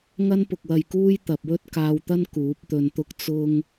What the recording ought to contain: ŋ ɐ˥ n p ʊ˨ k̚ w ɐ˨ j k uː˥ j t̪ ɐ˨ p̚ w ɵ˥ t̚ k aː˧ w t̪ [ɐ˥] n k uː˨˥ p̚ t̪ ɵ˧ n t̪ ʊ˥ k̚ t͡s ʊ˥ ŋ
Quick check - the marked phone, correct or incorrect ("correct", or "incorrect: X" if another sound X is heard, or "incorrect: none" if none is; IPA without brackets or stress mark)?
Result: correct